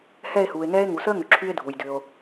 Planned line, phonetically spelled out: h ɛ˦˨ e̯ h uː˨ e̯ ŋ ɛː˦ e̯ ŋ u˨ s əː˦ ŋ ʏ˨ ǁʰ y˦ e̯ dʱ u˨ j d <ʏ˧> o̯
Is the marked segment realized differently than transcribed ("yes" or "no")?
no